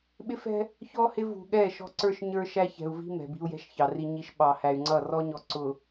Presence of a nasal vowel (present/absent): absent